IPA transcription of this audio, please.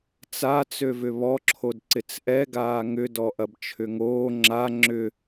t͡s a t͡s ø v ʏ β ɔ ǁʰ o d ǀ ɪ t͡s ʔ ɛ ɡ aː ŋ ʏ d ɔ ʔ ɐ b t͡ʃʰ ʏ ŋ oː ŋ͡ǁ a ŋ͡ǁ ʏ

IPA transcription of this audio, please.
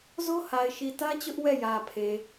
z o˦ h a˨ ɪ̯ ʃ i˨ t ä˦ t͡ɕ ʊ˦ ʔ w ɛ˦˨ j ä˨ pʰ e˨

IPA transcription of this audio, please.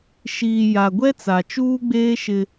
ʃ iː˨ j a˨ ɡʷ ɛ˦ t͡s a˨ t͡ʃ uː˦ ɡ͡b eː˦ ʃ ɪ˦

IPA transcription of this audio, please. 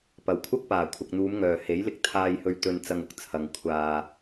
p ɐ˨˩ w kʷʰ ɐ˥ k̚ p aː˨˩ kʷʰ ɐ˨ k̚ n̪ uː˨˧ m ŋ œː˨˩ h e˨˥ j l ɪ˧ k̚ t̪ʰ aː˧ j h ɵ˧ ɥ t̪ ɵ˨ n t͡s ɐ˨ ŋ ʊ˨ k̚ t͡sʰ ɐ˨ ŋ kʷʰ aː˨

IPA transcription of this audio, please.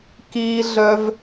k iː˦ ɮ œ˦ v

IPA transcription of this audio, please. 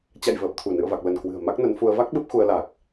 t͡ɕ a̰˧˨ j v əː˨˩ p̚ t̪ʰ u˧˩ n ɨ̰˧˨ ə̯ v a˨˩ k̚ l ə˧˩ n k w ɨ̤˨˩ ə̯ m a˦˥ k̚ n ə˨˦ n f u˧ ə̯ v a˦˥ k̚ ɓ ɨ˦˥ p̚ x u˧ ə̯ l aː˨˩ k̚

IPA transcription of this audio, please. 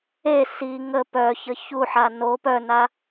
e s i ŋ ə p œ ç ə ç u ħ a n o p œ n̪ a

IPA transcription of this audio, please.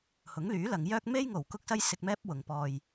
h ʊ˨˥ ŋ l yː˨˥ l ɐ˨˧ ŋ j œː˥ k̚ m e˥ j ŋ o˨˩ w k ʊ˥ k̚ s ɐ˥ j s ɪ˧ k̚ m ɛː˥ p̚ w ʊ˨ ŋ p ɔː˧ j

